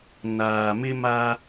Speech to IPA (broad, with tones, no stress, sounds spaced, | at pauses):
n aː˨ m ɪ˦ m a˦